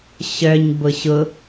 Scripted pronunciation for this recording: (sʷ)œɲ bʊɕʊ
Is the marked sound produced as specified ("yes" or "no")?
no